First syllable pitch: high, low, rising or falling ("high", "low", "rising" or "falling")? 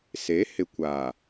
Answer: rising